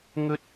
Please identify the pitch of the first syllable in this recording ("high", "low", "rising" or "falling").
high